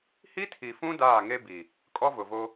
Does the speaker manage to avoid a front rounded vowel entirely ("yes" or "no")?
yes